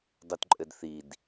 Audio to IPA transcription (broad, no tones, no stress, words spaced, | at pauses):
dˤutǃʼɘdθid